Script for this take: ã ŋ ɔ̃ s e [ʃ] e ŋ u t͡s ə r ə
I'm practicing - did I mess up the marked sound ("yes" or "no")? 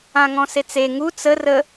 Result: yes